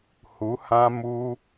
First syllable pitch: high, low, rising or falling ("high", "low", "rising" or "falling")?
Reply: rising